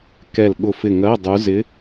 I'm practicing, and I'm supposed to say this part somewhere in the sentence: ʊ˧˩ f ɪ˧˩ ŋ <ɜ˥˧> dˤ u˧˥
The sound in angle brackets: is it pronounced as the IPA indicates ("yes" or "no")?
no